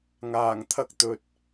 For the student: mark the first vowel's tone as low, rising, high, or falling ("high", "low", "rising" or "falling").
low